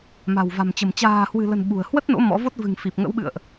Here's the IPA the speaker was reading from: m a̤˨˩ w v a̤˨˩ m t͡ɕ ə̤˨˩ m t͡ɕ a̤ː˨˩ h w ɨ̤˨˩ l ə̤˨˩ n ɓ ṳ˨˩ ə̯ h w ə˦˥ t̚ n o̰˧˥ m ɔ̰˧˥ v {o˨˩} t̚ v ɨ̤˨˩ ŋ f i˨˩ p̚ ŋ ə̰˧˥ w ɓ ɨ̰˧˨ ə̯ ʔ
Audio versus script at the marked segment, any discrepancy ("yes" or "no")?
yes